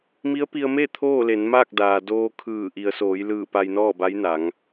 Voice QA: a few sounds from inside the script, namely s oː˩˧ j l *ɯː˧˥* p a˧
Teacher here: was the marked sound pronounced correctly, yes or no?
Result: no